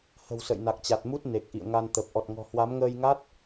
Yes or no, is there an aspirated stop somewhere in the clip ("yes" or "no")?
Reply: no